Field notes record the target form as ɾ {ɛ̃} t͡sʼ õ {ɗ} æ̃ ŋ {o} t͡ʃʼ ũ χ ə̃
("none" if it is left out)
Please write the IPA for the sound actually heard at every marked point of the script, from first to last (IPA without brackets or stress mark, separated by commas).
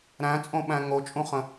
æ̃, ɓ, o